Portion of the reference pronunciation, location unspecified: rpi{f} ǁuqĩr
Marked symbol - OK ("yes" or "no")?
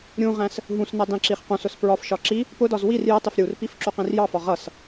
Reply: yes